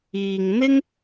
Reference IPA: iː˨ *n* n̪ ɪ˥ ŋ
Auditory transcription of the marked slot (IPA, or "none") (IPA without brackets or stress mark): ŋ